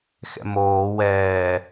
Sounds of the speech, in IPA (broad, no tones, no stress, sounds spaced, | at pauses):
x ɛ̰ m oː w ɛː